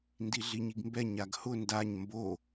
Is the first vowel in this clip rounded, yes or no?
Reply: no